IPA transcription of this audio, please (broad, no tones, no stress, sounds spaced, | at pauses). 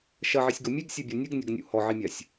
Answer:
ʃ ɐ ʕ i sʲ ɡ o mʲ e ɡ sʲ e bʲ ɔ nʲ ɨ ɡ nʲ ɐ ɡ nʲ ṵ h ɔ ʕ i mʲ a sʲ